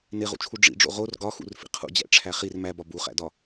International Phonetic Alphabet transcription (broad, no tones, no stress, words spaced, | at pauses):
neʁṵt͡ʃʰu ɖ͡ʐḭɖ͡ʐo̰ ʁor ɡɒxṵrfḭ qʰṵd͡ʑæ̰ʈ͡ʂʰæ χir mæbɒ buχæ̰dɒ